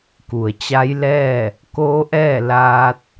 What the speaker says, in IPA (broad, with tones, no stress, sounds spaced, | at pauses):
k u˩ ə̯ t͡ɕ a˧˥ j l ɛː˥˨ | k oː˧˥ ʔ ɛː˥˨ l aː˧ t̚